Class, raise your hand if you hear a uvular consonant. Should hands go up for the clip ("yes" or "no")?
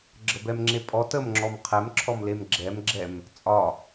yes